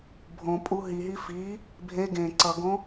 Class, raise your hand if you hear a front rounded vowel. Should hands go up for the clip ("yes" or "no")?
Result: no